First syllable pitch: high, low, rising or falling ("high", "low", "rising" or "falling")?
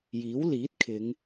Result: rising